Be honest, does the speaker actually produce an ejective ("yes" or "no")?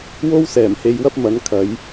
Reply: no